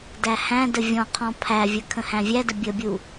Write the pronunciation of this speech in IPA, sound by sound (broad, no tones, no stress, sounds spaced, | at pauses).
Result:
d æ h æ̃ d ə vʲ ɔ̃ qʰ ɔ̃ pʰ æ vʲ ə kʰ ə̃ h æ̃ vʲ æ d ə bʲ ə bʲ u